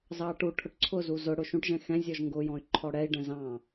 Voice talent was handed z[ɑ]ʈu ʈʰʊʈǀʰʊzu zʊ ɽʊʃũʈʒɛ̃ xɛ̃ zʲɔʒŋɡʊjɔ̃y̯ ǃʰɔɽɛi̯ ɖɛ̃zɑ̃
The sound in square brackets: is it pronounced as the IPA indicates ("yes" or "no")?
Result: yes